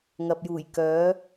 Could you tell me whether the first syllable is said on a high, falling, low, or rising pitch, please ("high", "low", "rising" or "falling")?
low